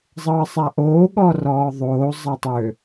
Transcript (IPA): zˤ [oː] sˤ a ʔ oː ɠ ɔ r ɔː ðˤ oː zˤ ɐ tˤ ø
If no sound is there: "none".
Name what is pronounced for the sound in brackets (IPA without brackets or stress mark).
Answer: ɤː